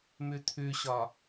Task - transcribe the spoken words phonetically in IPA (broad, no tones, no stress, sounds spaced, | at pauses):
m ʉ t̪ʰ ʉ ɕ ɒ